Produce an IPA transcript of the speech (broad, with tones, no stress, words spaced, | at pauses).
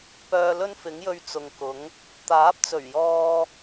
pœː˧lɵ˥nfɪ˨˥ŋjɵ˧ɥ t͡sʊ˨ŋkʊ˨˥ŋ | t̪aː˨˥p̚t͡sɵ˨˩ɥjɔː˧